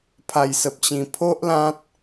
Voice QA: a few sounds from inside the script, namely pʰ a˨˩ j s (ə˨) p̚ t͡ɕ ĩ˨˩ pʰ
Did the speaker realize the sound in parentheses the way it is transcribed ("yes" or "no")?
yes